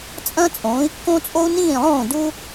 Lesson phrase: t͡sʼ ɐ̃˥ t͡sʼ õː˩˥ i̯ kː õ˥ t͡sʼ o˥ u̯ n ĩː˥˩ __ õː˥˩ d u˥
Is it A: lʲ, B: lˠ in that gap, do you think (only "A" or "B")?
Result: B